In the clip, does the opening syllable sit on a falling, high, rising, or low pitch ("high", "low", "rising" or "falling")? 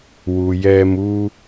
low